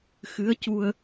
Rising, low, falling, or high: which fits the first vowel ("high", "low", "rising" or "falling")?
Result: rising